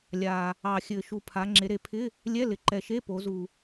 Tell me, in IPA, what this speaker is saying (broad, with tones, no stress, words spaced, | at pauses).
lʲa˨˩ | ɑ˨˩xʲɘ˨˩ʃu˨˩ pʰa˩˧ŋ͡ǁe˩˧ɾe˩˧pʰɪ˧˥˧ | lʲɛ˧˥˧lɪ˨˩ǃɛ˨˩ ʃe˧˥˧po˩˧zu˨˩